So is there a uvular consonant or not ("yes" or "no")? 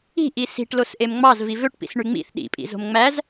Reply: no